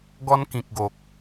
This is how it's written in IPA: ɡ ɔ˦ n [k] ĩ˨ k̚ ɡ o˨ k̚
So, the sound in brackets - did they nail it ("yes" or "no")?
yes